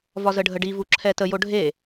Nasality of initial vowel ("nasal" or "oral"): oral